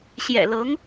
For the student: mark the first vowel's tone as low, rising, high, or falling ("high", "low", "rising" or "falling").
low